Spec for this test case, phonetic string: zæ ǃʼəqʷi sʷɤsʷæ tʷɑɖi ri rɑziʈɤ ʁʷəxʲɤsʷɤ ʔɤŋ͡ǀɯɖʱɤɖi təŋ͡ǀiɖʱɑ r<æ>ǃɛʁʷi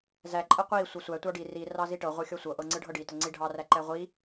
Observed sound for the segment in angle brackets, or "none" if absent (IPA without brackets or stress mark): æ